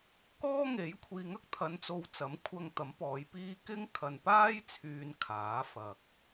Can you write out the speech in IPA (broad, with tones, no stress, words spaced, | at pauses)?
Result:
kɔː˥ŋe˨˥j kʷʰiː˨ŋɐ˥k̚t̪ʰɐ˨˧nt͡so˨w t͡sɐ˨˥mkʷʰɐ˧ŋ t̪ɐ˨˥mpɔː˨˧j piː˧ kɪ˥ŋkʰɐ˨n paː˥jt͡sʰyː˨n kʰaː˨˥fɐ˨k̚